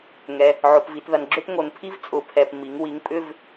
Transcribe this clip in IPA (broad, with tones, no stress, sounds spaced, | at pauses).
ŋ ɛ˩ | ʕ o˩ p v i˩ t ð ɐ˩ n ɡ͡ǁ ʏ˥˧ t ŋ o˩ n pʰ i˥˧ v t͡sʼ ʊ˩˧ pʰ ɛ˩ p m i˩˧ ŋ w i˩˧ ŋ pʼ ʏ˥˧ v